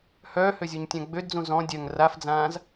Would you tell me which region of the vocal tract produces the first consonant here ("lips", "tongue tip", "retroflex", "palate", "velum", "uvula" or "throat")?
throat